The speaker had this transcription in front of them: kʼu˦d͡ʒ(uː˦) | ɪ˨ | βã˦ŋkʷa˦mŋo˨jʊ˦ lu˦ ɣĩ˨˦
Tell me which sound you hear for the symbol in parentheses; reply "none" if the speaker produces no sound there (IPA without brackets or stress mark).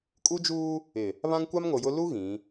uː˦